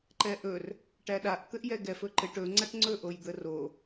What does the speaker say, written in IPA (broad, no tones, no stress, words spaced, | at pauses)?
ǃɛʔɵr | ʈæɗaʔ t̪ɘʔjɛɡɛf ɵǃɘʈ ɵ ŋ͡ǀaʈŋ͡ǀɵ ʔojd̪əro